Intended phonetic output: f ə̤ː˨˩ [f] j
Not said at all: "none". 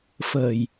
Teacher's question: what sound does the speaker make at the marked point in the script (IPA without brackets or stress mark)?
none